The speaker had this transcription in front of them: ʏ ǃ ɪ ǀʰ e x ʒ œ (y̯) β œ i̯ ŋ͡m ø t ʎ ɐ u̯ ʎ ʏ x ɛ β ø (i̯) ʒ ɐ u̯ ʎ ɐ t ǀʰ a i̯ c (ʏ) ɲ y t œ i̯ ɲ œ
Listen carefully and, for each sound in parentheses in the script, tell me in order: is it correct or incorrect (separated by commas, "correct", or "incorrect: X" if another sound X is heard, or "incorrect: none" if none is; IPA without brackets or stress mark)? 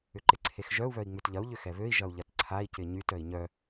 incorrect: u̯, correct, incorrect: ɪ